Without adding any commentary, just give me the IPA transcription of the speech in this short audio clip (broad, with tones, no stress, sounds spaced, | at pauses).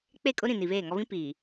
k͡p e˦˨ kʼ ʊ˦ ɾ ĩ˨ n i˨ β eː˦˨ ŋ ɔ˦ β ĩ˦ p iː˨